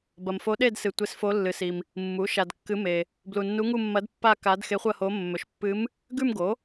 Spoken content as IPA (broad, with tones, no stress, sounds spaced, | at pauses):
b ɐ˨ m f o˧˥ ɗ e˥˧ d s ɨ˨ tʷ e˧˥ s f o˧˥ lː ɨ˨ s i˨ m | mː u˩˥ ʃ a˨ d kː ɨ˧˥ m e˨ | b l u˨ nː u˧˥ ŋ u˥˧ mː ɐ˧˥ d pː a˥˧ k a˧˥ d x e˧˥ χʷ ɐ˥˧ h o˧˥ mː ɵ˩˥ ʃ pː ɨ˧˥ m | ɡ ʉ˥˧ m ɡ o˩˥